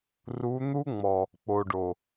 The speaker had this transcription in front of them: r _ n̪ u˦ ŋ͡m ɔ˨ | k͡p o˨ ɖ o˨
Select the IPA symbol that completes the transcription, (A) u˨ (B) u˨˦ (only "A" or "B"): B